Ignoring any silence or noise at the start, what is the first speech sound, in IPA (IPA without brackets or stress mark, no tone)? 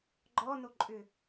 ɡ͡ǃ